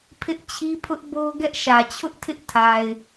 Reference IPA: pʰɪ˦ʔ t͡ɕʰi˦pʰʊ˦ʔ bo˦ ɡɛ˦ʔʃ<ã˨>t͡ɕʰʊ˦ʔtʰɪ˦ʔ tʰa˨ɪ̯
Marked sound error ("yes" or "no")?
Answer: yes